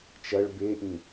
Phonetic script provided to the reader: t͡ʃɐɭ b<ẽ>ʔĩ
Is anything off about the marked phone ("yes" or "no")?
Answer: yes